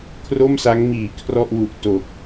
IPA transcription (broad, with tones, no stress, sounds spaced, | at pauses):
kʰ r o˥˩ m s a˦˥ ŋ m iː˨˩ kʰ r ɔ˥˩ ʔ w u˨˩ ʔ t o˨˩ k̚